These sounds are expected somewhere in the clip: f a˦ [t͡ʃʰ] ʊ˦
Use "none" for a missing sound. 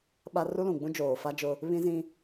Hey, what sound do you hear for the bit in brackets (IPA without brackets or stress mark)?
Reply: d͡ʒ